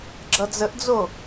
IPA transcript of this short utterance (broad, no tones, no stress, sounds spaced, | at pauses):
ɡ͡ǁ ʌ d͡z ə ʔ d͡z o